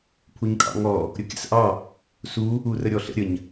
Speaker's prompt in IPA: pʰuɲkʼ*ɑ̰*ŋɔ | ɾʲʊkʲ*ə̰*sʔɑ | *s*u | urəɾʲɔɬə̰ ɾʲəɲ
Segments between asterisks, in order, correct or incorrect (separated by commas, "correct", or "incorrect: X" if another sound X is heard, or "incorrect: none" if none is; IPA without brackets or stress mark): correct, correct, correct